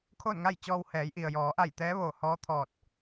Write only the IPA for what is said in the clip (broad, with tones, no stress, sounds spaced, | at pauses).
kʰ o˥˨ n ŋ a˥˨ j t͡ɕ ɔː˧ w h ɛː˩˧ j ʔ i˩ ə̯ j ɔː˩˧ ʔ a˧˩ j t̪ ɛː˧˥ ʋ oː˧˩ h ɔː˧˥ t̪ʰ ɔː˧˩ t̚